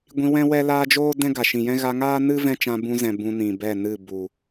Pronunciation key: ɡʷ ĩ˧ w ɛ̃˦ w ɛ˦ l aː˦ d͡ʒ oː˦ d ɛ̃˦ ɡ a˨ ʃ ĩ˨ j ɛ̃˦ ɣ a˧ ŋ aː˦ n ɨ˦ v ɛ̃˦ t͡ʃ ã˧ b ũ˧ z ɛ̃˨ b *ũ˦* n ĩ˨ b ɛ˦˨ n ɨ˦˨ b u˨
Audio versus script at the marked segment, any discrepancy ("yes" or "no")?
yes